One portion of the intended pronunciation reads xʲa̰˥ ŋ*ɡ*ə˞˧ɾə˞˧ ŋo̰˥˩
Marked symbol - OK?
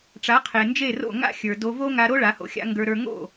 yes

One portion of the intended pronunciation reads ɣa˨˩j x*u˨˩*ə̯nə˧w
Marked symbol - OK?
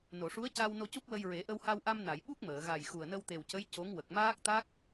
yes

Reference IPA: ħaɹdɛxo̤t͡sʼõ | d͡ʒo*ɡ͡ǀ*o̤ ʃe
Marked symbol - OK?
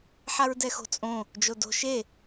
no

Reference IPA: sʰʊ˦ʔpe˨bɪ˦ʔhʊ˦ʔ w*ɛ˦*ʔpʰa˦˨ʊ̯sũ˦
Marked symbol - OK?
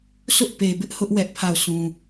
yes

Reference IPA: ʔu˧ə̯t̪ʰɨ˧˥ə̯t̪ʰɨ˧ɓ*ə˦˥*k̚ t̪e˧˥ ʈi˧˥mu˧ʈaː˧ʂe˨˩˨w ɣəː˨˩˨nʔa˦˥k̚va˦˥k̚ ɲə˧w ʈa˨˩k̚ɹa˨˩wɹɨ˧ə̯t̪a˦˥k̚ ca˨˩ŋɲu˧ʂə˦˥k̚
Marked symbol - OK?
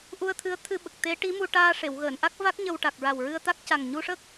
no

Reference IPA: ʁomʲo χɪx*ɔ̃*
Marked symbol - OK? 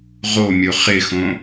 no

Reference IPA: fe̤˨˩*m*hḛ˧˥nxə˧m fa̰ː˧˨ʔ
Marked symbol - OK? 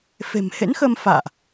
yes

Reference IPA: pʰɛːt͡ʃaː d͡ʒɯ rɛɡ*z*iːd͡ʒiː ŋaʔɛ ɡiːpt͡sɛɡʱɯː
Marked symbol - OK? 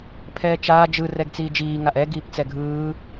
no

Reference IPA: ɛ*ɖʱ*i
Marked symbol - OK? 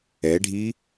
yes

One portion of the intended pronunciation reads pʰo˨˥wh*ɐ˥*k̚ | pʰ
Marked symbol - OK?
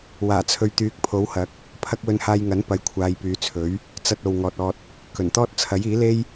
no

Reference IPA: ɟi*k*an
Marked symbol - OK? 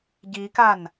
yes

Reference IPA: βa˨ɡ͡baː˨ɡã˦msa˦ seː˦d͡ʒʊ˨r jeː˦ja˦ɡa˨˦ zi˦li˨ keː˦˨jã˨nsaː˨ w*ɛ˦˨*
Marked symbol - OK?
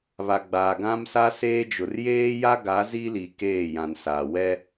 no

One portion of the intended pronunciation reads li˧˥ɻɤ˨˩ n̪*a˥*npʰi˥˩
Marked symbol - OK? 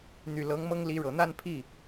no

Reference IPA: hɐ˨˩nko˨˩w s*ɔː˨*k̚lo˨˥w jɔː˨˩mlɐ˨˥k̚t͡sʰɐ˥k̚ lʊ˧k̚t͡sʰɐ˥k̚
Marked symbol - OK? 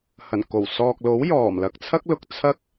yes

